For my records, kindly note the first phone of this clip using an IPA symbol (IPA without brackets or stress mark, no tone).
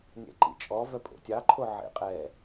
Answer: nʲ